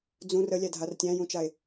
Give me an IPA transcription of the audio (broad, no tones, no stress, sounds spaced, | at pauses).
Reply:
d͡z ũ r ə lʲ æ dʱ a r tʲ æ̃ j ũ t͡ʃ a e̯